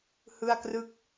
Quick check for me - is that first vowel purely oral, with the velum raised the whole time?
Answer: yes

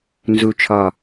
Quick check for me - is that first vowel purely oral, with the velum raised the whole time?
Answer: yes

